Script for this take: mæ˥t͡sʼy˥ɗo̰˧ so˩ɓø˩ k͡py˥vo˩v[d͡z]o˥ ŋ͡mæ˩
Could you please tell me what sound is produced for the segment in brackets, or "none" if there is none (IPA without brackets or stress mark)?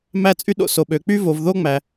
ð